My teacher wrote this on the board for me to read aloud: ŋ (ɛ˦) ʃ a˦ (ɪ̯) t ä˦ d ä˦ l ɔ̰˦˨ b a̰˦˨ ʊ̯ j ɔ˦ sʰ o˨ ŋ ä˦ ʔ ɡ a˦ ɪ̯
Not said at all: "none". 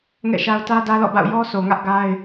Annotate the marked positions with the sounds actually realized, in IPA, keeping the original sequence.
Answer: ɛ̰˦˨, ʊ̯

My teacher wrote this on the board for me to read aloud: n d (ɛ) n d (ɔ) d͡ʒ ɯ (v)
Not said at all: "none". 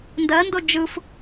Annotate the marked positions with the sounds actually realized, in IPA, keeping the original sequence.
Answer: ɜ, o, f

